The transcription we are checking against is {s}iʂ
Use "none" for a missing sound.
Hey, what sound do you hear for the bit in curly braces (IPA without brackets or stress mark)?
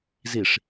z